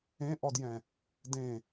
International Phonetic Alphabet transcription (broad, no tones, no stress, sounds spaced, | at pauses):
ẽ ʔ ɔ d j ɛ̃ | d ẽ